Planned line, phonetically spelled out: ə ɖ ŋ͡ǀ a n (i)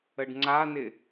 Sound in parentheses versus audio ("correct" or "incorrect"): incorrect